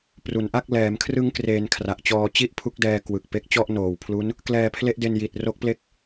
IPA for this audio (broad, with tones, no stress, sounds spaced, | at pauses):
p r u˩˦ n ʔ a˥˩ k̚ l ɛː˩˦ m kʰ r ɯ˦˥ ŋ k r eː˧ n kʰ r a˨˩ ʔ t͡ɕ ɔː˧ t͡ɕ i˥˩ ʔ pʰ u˦˥ k̚ d ɛː˧ k w ɯ˨˩ k̚ p e˦˥ k̚ t͡ɕ ɔ˥˩ ʔ n oː˨˩ w pʰ l u˦˥ n | k l ɛː˧ pʰ l e˦˥ ʔ d e˧ n j i˨˩ t̚ r o˦˥ k̚ p l e˥˩ k̚